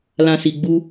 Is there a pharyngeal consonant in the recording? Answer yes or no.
no